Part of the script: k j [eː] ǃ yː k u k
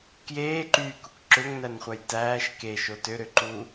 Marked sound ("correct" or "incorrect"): correct